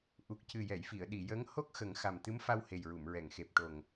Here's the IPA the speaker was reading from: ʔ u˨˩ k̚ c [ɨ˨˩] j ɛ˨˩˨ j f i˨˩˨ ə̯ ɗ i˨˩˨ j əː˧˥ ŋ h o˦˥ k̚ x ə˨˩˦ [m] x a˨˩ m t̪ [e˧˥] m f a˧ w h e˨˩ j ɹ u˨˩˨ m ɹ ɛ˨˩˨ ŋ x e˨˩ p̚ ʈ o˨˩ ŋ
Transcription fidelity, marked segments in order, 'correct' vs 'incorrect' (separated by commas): correct, incorrect, incorrect